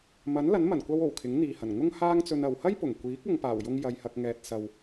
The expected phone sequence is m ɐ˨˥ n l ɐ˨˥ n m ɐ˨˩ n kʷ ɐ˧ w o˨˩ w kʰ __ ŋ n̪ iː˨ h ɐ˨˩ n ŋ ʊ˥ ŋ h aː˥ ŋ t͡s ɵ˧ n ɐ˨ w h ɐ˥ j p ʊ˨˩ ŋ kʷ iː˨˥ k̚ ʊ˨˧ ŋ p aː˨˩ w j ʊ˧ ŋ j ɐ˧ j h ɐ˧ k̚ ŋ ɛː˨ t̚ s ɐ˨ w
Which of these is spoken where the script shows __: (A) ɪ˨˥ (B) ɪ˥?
A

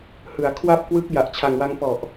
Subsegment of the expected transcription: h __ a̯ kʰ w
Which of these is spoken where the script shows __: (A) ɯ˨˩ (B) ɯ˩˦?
B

